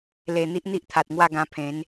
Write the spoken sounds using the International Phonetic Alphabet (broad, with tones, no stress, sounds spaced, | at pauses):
l e˨˩ n̪ i˦ ʔ n̪ i˦ ʔ t̪ʰ a˨ t̚ ŋ w a˥˧ ɡ ã˧ pʰ ẽ˨˦ n